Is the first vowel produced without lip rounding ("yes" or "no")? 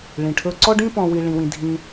yes